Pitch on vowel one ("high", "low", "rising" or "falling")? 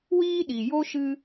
high